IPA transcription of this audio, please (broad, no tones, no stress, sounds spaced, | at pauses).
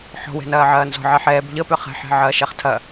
ħ ɔ̤ w ɛ̤ n ɐː ʕ ɐː n z ɔ̤ ʕ ɛ ħ ɛː b ʎ ə p ʏ χ ɛ̤ ħ ɛ̤ ʕ ɐː ʃ ɛ χ tʰ ɐ